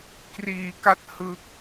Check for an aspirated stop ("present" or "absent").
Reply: absent